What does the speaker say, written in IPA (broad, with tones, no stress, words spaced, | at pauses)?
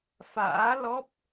fa̰ː˧˥lɔ˦˥p̚